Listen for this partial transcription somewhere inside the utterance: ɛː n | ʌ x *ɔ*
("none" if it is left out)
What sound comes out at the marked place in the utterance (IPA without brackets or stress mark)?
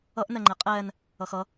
ʌ